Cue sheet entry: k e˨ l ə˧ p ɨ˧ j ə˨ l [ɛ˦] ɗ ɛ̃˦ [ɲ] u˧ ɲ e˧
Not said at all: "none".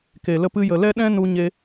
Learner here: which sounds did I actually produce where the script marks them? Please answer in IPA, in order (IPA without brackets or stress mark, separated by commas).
ɛ˦, n